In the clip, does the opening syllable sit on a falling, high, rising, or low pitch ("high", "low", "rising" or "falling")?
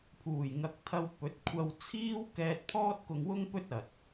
low